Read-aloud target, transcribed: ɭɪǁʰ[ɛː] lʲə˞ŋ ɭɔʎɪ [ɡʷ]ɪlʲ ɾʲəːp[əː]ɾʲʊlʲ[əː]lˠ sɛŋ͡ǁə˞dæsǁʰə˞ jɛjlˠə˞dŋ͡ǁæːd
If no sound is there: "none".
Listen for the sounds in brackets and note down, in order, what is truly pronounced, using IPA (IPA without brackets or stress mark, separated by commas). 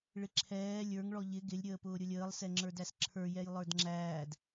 ɛː, ɡ, ʊː, əː